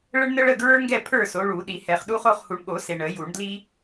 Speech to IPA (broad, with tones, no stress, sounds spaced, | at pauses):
ɭ ə˦ ɳ n ə˦ ɭ ə˥˨ ɡ ɹ ə˞˦ ŋ ɡ ɛ˥˨ pʰ ə˞˥˨ s o˨˦ ɭ u˨˩˦ ɗ i˨˩˦ h ɛ˨ χ ɗ u˦ χ o˥˨ χ h u˨ ɳ ɠ o˨˩˦ s e˨ ɳ ə˨˩˦ j u˨˩˦ ɳ d l i˦